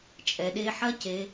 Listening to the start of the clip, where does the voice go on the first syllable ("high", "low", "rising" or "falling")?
low